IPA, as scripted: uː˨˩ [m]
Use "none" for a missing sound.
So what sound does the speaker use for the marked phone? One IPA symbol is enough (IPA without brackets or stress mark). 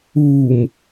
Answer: m